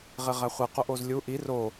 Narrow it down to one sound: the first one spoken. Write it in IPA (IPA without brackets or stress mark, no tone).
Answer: ʁ